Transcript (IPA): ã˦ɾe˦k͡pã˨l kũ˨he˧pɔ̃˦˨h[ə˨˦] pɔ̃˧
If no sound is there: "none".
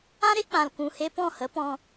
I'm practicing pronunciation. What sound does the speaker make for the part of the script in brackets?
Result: ə˨˦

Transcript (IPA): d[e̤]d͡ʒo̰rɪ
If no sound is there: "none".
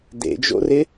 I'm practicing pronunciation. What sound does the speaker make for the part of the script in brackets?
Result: ḛ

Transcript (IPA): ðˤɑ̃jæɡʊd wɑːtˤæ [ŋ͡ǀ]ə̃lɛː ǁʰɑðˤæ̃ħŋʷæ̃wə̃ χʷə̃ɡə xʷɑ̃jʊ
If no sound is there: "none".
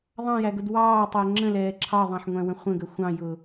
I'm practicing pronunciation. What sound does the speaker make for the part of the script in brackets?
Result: ŋ͡ǁ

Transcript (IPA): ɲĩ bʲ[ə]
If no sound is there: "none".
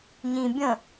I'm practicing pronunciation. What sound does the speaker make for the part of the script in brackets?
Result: ə̃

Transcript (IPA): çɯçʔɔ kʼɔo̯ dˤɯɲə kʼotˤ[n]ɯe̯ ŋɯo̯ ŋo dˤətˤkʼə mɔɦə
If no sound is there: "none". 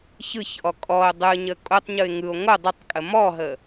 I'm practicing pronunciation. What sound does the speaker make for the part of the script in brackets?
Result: ɲ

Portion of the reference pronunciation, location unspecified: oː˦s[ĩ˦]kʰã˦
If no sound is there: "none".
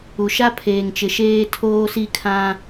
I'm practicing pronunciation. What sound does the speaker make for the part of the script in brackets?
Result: i˦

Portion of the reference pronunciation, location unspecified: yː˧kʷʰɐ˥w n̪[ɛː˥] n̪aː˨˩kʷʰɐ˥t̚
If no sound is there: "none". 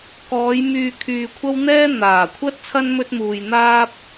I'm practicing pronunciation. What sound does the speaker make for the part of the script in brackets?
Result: ɛː˥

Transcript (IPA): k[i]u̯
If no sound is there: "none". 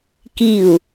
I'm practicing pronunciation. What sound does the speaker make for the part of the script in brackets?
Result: i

